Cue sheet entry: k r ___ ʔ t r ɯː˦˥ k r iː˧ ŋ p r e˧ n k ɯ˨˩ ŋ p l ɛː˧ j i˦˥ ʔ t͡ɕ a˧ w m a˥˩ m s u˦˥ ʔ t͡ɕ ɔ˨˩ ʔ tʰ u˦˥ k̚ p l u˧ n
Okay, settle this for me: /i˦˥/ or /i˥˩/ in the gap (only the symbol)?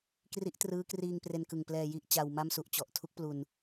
i˦˥